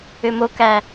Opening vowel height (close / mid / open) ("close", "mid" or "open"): close